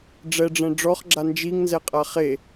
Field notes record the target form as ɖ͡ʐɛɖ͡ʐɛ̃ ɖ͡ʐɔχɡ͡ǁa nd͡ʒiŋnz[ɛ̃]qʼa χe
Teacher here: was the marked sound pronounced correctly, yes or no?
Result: no